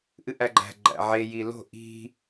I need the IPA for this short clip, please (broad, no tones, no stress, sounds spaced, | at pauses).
ʔ ɨ ʔ æ ɡ͡ǃ æ̤ ɡ͡ǃ æ̰ ʕ e j i l o̤ ʔ i̤